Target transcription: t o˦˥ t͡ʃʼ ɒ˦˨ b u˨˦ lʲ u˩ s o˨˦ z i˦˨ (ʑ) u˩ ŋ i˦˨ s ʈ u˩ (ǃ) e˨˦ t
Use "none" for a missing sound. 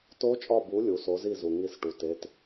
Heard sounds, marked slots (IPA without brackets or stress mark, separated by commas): z, t